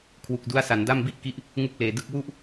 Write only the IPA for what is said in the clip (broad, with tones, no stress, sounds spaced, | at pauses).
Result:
kʰ w u˨˩ k̚ d u˦˥ a̯ s a˩˦ n d a˥˩ m b i˥˩ ʔ k i˦˥ ʔ | ŋ u˥˩ k̚ l eː˨˩ d ɯ˥˩ k̚ w u˥˩ ʔ